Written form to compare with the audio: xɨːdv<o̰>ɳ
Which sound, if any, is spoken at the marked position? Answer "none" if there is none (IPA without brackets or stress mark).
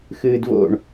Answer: o̰